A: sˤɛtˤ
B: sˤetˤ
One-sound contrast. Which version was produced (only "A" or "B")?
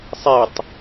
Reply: B